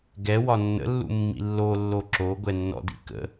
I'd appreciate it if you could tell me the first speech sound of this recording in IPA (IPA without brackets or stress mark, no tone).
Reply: ɡ